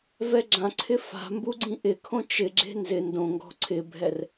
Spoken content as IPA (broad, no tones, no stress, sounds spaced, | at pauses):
v ɛ ɡ͡ǁ ã ǀʰ ɪ f a̤ m b u ɡ͡ǀ ĩ ʔ ɪ kʰ õ t͡ʃ ɪ ɡ͡ǁ e̤ n z ɪ n d õ ŋ ɡ ɔ̤ ǀʰ ɪ bʱ ɛ r